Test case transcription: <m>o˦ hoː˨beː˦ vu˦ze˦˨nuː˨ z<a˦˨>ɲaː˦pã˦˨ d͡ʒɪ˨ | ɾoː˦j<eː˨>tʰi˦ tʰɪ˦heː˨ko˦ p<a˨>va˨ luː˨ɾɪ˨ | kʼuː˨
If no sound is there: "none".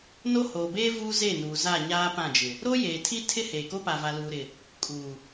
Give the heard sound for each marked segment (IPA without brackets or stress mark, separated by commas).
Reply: n, a˦˨, eː˨, a˨